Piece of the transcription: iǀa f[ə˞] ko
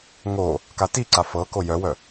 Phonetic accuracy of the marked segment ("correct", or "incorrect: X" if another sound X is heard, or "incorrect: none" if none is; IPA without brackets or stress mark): incorrect: ɤ